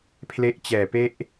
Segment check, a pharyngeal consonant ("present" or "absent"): absent